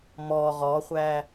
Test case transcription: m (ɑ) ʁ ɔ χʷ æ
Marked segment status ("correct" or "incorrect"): incorrect